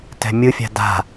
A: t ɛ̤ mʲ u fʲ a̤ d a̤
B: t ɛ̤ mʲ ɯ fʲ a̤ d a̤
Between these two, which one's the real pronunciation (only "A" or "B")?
B